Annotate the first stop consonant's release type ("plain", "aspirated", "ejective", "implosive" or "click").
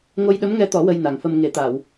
implosive